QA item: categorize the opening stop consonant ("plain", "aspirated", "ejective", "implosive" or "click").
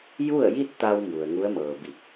plain